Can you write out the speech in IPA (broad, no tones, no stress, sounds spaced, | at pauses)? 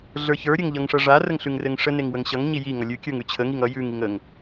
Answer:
ɮ ə˞ ç ə˞ ɾʲ ɘ ŋ ʎ ʌ ŋ ʂ ʌ ʐ a r ə ŋ ɬ ʉ ŋ r ɘ ŋ ʂ ə n e ŋ w ə ŋ ɕ ʌ ŋ ɲ i j i ŋ ʌ lʲ ʉ kʲ ə˞ ŋ ʉ t͡ɕʰ ə ŋ i ŋ ʌ j ʉ ŋ i ŋ ə ŋ